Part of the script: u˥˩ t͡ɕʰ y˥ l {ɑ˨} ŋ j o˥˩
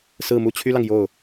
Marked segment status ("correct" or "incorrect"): correct